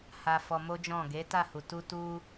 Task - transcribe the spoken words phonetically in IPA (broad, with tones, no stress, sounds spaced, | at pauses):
h a˧ f ɔ˧ m o˦ d͡ʒ ɔ̃˦˨ ɡ e˨˦ t a˦˨ h u˨ t u˧ t u˧